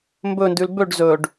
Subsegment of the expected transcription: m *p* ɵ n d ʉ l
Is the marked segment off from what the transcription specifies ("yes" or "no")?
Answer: yes